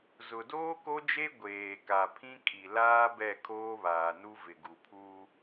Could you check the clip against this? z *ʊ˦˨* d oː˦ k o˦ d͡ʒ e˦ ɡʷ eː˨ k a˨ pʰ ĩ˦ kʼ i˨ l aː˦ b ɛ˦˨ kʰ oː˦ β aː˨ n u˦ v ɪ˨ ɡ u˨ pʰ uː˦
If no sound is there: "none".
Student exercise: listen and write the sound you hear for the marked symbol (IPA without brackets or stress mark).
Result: ʊ˨